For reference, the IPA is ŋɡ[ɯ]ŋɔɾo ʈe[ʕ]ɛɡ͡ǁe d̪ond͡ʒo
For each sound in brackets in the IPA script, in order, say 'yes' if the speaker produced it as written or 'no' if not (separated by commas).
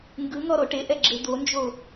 yes, no